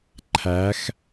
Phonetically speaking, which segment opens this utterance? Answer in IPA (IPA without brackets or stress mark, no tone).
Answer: ǃʰ